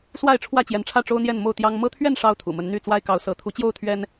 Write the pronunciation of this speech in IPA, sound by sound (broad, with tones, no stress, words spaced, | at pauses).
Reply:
swa˥˨ɪ̯ʈ͡ʂʰwä˥˨t͡ɕjɛ˨˦nʈ͡ʂʰä˥˨ ʈ͡ʂo˦ʊ̯n̪jɛ˥˨n mo˥˨ʊ̯t̪jɑ˦ŋ mɤ˦t̪ʰɥɛ˥˨n ʂɑ˦ʊ̯t̪ʰṵ˨˩mə˨˦n n̪y˥˨ t͡swa˦ɪ̯kɑ˨˦ʊ̯ sɤ˨˦ t̪ʰu˨˦t͡ɕjo˥˨ʊ̯ t̪ʰɥɛ˦n